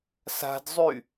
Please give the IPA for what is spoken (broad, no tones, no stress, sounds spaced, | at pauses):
s a̤ d zˤ y